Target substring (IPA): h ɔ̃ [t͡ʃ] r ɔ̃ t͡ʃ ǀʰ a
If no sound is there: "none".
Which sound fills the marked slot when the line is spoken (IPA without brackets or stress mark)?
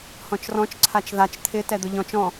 t͡ʃ